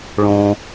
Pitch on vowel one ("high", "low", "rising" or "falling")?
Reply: low